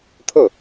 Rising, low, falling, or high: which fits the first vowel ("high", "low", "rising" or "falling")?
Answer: falling